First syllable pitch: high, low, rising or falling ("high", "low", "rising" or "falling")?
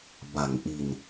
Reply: low